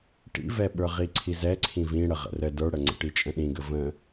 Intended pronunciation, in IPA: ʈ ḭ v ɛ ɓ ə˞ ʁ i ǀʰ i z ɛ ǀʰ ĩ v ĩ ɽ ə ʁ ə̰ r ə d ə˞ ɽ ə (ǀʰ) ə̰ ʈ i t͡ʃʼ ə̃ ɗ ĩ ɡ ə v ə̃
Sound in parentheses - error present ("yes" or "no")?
yes